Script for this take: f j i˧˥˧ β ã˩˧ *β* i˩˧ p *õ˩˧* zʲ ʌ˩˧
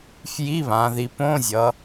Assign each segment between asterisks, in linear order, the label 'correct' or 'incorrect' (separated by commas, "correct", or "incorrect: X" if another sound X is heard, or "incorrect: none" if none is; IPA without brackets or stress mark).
incorrect: ð, incorrect: õ˧˥˧